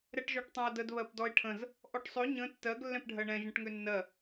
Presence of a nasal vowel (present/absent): present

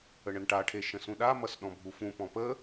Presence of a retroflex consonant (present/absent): present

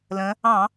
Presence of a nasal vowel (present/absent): present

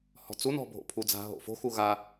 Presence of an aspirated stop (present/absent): present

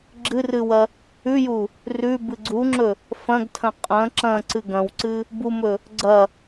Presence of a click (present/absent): present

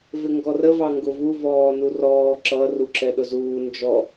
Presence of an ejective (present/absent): absent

